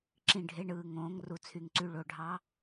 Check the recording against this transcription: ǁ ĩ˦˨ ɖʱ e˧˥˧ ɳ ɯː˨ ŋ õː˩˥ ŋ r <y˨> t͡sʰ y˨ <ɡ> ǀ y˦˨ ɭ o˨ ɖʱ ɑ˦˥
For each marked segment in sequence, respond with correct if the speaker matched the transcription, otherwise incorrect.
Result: incorrect: u˨, incorrect: ŋ

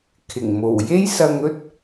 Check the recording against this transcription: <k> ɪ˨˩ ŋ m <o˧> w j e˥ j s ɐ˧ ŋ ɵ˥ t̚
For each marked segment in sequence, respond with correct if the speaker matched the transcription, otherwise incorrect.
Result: incorrect: kʰ, incorrect: o˨˩

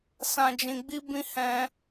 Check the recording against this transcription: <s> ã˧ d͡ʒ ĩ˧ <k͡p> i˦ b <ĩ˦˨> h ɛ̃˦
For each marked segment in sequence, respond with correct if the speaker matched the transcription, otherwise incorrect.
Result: correct, incorrect: ɡ͡b, incorrect: ĩ˦

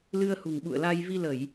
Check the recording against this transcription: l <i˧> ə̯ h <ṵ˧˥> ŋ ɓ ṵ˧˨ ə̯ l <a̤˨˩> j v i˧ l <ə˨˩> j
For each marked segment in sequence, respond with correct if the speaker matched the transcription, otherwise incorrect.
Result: incorrect: ɨ˧, incorrect: ṳ˨˩, incorrect: a˧, incorrect: ə˧˩˨

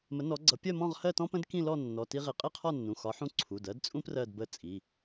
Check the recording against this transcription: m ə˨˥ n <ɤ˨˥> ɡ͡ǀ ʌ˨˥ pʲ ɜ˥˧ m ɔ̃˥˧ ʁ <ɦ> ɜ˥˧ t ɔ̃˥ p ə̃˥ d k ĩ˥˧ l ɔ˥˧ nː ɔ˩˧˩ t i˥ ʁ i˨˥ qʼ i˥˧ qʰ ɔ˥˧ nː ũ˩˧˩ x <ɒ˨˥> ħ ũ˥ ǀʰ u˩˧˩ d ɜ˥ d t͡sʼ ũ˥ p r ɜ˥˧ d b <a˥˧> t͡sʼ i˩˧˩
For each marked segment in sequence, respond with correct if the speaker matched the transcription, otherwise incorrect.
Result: incorrect: ɔ˨˥, incorrect: h, correct, incorrect: ə˥˧

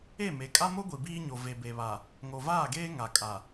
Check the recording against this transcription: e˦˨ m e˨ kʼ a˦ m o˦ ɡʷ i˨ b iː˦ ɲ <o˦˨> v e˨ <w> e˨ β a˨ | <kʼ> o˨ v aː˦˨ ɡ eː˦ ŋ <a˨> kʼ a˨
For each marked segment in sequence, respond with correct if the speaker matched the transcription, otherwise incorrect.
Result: incorrect: o˨, incorrect: b, incorrect: ŋ, correct

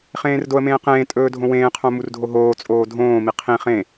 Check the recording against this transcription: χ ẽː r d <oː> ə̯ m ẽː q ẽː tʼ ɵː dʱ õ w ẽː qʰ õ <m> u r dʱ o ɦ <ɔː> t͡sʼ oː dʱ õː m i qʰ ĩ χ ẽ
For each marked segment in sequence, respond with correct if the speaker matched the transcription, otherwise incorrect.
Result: incorrect: o, correct, incorrect: oː

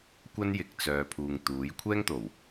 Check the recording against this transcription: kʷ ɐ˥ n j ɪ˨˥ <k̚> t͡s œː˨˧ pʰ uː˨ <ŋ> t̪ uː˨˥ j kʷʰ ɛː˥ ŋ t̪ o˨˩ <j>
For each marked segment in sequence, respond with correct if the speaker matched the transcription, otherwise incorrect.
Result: correct, correct, incorrect: w

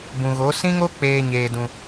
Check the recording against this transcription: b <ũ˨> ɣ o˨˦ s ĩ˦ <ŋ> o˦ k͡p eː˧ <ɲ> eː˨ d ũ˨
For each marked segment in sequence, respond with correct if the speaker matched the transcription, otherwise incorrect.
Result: correct, correct, correct

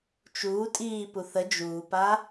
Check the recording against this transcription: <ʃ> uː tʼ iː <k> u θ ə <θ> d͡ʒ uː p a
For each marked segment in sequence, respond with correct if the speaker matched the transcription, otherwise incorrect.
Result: incorrect: t͡ʃ, incorrect: p, incorrect: none

